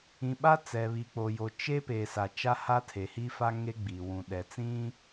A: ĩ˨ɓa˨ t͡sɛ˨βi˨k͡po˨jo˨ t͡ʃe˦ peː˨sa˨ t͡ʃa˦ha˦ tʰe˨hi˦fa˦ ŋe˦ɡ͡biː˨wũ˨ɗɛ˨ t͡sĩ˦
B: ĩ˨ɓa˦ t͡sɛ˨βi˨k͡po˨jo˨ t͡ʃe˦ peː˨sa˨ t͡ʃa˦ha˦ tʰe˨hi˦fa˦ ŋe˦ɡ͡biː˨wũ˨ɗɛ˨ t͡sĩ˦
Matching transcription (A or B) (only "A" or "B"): B